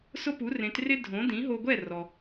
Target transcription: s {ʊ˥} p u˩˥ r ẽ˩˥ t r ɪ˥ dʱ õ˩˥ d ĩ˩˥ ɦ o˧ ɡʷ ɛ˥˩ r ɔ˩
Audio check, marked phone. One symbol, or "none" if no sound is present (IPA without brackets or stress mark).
ʊ˥